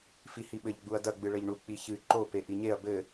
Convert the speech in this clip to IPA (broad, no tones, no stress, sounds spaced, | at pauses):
f i h i ɓ ɘ ʎ ɡ͡b u ɐ̯ d ɐ ɡ͡b ɨ ɭ ɘ ʎ ɳ u k͡p i ç ɨ ǃ o p e ʔ i ɲ e ɐ̯ b ɘ